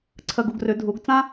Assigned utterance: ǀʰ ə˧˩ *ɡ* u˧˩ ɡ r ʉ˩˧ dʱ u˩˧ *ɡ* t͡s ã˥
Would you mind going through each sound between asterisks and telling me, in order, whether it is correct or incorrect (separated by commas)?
correct, correct